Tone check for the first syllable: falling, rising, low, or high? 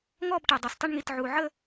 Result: falling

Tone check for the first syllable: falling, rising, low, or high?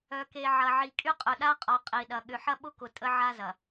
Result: low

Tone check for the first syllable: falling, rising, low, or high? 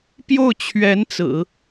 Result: falling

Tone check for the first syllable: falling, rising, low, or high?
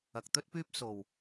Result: low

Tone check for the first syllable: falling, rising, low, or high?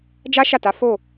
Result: high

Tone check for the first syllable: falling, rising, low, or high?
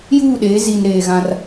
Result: falling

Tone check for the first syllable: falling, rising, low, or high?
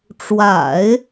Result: low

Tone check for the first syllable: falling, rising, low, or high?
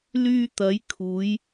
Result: high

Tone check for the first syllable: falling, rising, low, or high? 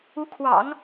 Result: rising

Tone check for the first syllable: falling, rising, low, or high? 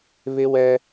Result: high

